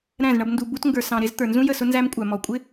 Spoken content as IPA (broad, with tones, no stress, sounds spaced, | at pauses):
ɾ æ̃˦˨ z ɳ ʌ˧ b n d u˨ b u˧ t ŋ ɡ ə˞˨ s ɑ̃˨ ɾ ɪ˧ z t̪ ə˞˨ n z ũ˦ j ə˦˨ s ʊ˦ n z æ˧ m kʷʼ æ˨ m ɔ˨ kʷʼ ɪ˦